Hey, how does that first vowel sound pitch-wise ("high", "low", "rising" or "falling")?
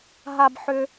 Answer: high